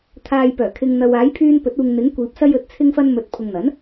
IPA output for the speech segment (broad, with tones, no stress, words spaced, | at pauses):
t̪ʰaː˨jpœː˨˩kʰɪ˨ŋ n̪ɐ˨w aː˨˥jpʰyː˧npɵ˨˥t̚uː˨ŋ n̪ɪ˨˥ŋkʷiː˨p̚ sɐ˧jɵ˨˥t̚t͡sʰɪ˧ŋfɐ˧n mɵ˨˥t̚ pʰʊ˨ŋn̪ɐ˨˥n